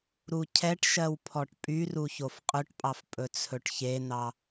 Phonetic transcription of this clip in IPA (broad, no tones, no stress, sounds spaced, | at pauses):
ɾ u cʰ ɛ ʈ ʃ ɜ w pʰ ɔ ʈ pʼ y r u ç o f qʼ ɵ ʈ pʼ ɑ f pʼ ɵ t͡sʰ ɵ ʈ ç e n̪ ɑ